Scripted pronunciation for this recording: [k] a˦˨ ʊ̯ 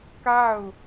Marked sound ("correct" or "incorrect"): correct